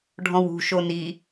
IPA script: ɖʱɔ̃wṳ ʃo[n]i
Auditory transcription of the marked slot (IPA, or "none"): n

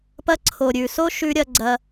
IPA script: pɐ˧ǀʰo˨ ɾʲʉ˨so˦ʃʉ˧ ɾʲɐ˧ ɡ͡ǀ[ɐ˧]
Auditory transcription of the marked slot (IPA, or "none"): ɐ˧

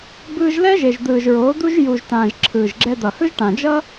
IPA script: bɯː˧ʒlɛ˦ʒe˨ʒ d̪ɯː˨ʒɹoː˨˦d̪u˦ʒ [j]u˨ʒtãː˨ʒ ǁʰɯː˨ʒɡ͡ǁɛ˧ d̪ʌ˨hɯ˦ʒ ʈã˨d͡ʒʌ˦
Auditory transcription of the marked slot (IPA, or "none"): j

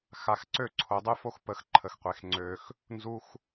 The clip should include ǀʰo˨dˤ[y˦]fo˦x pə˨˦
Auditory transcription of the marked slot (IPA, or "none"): y˦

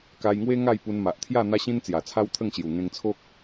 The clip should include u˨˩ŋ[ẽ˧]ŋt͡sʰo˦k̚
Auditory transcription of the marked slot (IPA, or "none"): ẽ˧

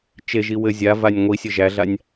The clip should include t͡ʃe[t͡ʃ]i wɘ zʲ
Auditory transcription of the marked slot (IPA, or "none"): ʒ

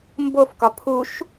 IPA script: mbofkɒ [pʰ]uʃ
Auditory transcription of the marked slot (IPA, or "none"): pʰ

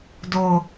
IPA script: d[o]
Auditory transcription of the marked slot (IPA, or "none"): o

